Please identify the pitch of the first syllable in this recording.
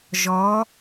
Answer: rising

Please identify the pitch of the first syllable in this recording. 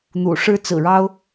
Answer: low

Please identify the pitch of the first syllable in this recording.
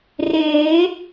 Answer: rising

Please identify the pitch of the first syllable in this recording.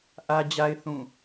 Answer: high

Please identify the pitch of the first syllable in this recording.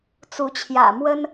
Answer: rising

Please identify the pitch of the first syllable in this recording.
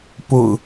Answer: low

